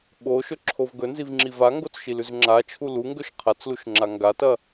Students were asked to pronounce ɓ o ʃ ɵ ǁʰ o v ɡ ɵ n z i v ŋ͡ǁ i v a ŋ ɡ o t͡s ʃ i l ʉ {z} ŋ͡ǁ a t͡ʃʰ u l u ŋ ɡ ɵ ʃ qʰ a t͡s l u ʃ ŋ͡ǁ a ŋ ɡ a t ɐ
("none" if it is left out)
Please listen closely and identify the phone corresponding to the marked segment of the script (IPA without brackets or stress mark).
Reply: z